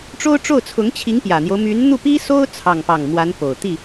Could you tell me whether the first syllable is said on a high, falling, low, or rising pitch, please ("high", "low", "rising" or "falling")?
high